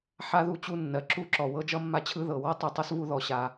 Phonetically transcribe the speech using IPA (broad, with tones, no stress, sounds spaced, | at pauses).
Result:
ħ a˥ ð u˥ t͡ɕ u˦ nː ɜ˩ ǁ u˦ ǁ ɔ˩ w ɤ˥ d͡ʒ ʌ˥ mː a˦ t͡ɕʰ ɯ˦ ð ɤ˩ w ɔ˥ tˤ u˩ tˤ ʌ˥ s v u˦ ð ɔ˩ ɕ a˩